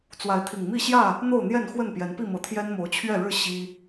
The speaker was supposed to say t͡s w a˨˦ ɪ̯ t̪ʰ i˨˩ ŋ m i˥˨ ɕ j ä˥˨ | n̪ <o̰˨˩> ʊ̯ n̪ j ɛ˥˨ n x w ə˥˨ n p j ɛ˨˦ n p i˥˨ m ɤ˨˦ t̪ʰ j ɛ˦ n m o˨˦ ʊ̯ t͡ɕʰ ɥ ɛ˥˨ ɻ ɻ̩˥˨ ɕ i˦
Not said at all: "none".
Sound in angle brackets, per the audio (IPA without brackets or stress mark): o˥˨